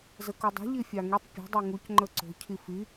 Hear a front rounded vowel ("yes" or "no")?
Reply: no